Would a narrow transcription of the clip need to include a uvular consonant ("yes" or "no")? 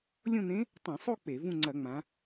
no